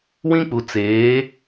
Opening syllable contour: high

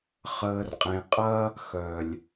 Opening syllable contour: low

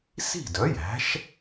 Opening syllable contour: falling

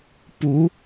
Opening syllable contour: rising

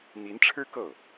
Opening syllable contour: rising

